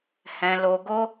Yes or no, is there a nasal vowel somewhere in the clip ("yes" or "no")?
yes